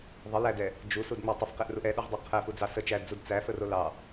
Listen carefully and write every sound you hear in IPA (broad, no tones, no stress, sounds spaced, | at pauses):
ðˤ ə l æ d ɛ | d͡ʒ u s u d ŋ͡m ɛ tˤ ə f q ɛ ʔ r u ʔ ɛ ɗ u ʁ dˤ u qʰ æ f u d͡z ɑ s ə t͡ʃ æ d d͡z u d t͡s æ f ə r o l ɑ